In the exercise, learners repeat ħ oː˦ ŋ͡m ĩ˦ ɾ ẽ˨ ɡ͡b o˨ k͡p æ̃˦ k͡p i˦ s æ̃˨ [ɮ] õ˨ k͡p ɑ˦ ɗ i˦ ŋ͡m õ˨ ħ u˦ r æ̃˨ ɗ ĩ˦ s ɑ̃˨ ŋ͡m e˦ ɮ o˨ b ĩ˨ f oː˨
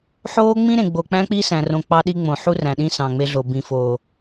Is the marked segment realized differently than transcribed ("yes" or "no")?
yes